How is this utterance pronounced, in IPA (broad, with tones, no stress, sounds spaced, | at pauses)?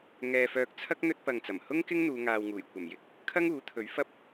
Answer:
ŋ ɛː˧ f œː˧ k̚ t͡sʰ ɐ˥ k̚ n̪ ɵ˧ t̚ p ɐ˨ ŋ t͡s ɐ˨˩ m h ʊ˥ ŋ k ɪ˥ ŋ n̪ uː˨˧ ŋ aː˨ w ŋ uː˨˩ j kʷ ɐ˨˩ m j ɪ˨˥ k̚ | kʰ ɐ˥ ŋ uː˨˥ t̪ʰ ɵ˨˥ ɥ f ɐ˥ p̚